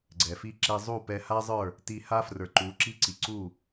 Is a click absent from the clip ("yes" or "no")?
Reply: no